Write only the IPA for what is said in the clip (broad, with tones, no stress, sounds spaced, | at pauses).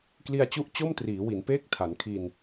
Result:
k l i˧ a̯ t͡ɕ u˦˥ ʔ t͡ɕ o˥˩ m t r iː˩˦ w i˩˦ n p eː˥˩ k̚ tʰ a˩˦ n kʰ i˧ n